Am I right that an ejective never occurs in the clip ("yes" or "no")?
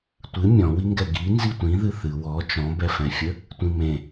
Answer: yes